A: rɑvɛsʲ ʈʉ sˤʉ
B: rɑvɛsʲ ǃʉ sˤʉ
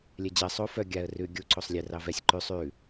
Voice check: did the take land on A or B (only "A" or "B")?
B